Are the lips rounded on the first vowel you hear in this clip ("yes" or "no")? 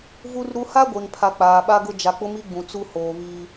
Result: yes